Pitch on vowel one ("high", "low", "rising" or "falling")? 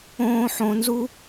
high